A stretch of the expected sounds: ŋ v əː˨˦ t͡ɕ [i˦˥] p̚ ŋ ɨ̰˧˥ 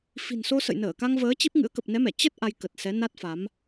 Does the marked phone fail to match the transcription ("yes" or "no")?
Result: no